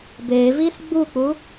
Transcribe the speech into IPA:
b e v i s ɡ͡b u k͡p u

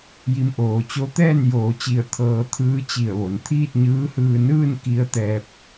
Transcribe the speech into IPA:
j i˧ m ʔ oː˩ t͡ɕ o˧˥ t̪ ɛː˥˨ n j oː˩˧ t͡ɕ i˧˩ ə̯ t̪ʰ ɤː˧ t̪ʰ ɯː˧˥ t͡ɕ i˧˩ ə̯ ʋ o˩ n t̪ʰ iː˥˨ t̚ ɲ ɯː˧˥ h ɯː˧ n ɯː˥˨ n k i˧ ə̯ t̪ ɛː˧ p̚

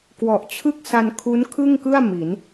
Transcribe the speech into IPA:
k w ɔ˨˩ ʔ t͡ɕʰ ɯ˥˩ k̚ s a˧ n kʰ u˦˥ n kʰ ɯ˥˩ ŋ k ɯ˥˩ a̯ m i˩˦ n

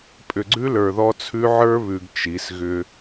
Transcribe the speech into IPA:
pʼ ʏ˨ ɡ͡ǀ ʉ˦ l ə˞˨ ð ɔ˦ t͡sʰ ʉ˦ ʕ ə˞˦ β ʉ˨ ɡ t͡ʃ i˨˦ s ɣ ʏ˦

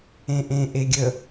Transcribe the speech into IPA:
ẽ ʔ ẽ ʔ e ɡʲ ə

